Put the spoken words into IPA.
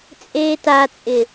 t͡sʼ eː t a t͡sʼ ɪ

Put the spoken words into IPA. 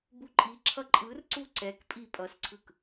b u ǃʼ i ǁʰ ʌ ǃʼ ɯ r ǀ u ǀ ɛ k pʼ i pʼ ʌ s ǀʰ ɯ k

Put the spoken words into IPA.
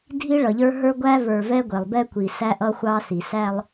dʱ i˦ ɭ ʌ˨ ʎ ə˞˦ ɦ ə˞˦ ɡʷ æ˦ v ə˞˨ v ɛ˦ ɡʷ ɛ˨ lˠ b ɛ˦ kʷ i˨ s æ˦ ʔ ʌ˦ xʷ ɑ˦ s i˨ s æ˦ lˠ

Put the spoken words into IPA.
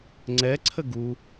ŋ͡ǀ ɛ ǀʰ ə ɡ u

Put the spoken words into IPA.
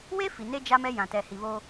w e˦ f i˨ n e˦ d͡ʒ a˦ m ɛ˦ j ã˨ t ɛ˨ h i˨ β oː˦

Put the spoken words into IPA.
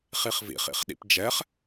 χ i χ v ḭ χ ḭ χ ɗ ḭ p d͡ʒ ɛ χ

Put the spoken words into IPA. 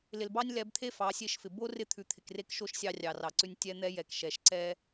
l ɪ˨ l b ɑ˦ nʲ l ɛ˨˦ b t̪ʰ e˦ f ɑ˨˦ sʲ e˦˨ ʃ f ɪ˨ b o˦ r ɪ˦ t̪ʰ ʉ˨ t̪ʰ ɪ˨ k r e˦ k ʃ o˦ ʃ sʲ ɑ˦ rʲ ɑ˨ r ɑ˨ ǀ ʉ˦ nʲ tʲ ɛ˦ n̪ ɛ˦ j ɛ˨ k ʃ ɛ˨ ʃ ǀ ɛ˦

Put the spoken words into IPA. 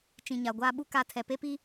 t͡ʃ ĩ˨ ɲ a˨ ɡʷ aː˦ ɓ u˦ k a˦˨ tʰ ɛ˨ p e˦ p i˦

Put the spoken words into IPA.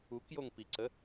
u k j o ŋ p i ǀ ə

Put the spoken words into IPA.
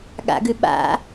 ɠ a̰ ɡ ʉ ɓ a̰

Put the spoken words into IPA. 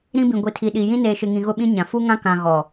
ɾ ĩ˦ b ĩ˨ ɡʷ i˨ tʰ i˨ ɗ i˨ j ĩ˦ n eː˨ ʃ ɪ˨ ŋ ĩ˨ ɣ ʊ˦ ɓ ĩ˦ ɲ ã˨ f u˦ ŋ ã˦ k ã˨ ɣ ɔ˨

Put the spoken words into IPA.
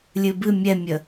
lʲ ɨ b ɨ mʲ ɛ mʲ ə

